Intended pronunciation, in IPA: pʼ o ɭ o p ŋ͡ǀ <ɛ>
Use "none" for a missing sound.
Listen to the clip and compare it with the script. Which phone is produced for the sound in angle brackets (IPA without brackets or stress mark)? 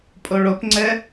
ɛ